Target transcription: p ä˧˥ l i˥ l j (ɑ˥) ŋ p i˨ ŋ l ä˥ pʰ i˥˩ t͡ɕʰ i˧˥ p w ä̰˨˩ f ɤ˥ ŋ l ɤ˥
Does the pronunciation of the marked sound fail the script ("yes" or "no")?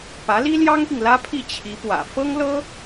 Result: no